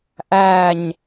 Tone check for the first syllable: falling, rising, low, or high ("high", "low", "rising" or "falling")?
falling